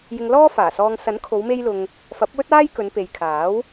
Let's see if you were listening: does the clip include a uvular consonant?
no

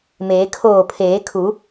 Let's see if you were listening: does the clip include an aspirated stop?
yes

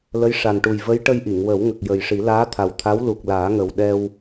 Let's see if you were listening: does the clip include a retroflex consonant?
yes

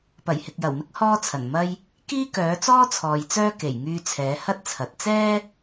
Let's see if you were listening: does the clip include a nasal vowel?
no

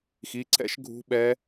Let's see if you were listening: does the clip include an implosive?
yes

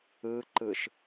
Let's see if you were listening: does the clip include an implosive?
no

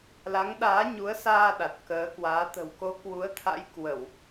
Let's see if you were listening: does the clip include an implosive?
yes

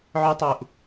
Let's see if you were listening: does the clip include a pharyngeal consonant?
yes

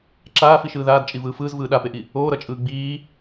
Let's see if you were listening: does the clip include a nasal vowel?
no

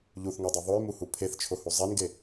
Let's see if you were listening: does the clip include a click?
no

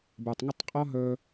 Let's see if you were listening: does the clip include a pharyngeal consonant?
no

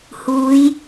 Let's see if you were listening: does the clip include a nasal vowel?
no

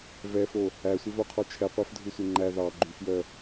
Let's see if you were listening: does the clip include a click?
yes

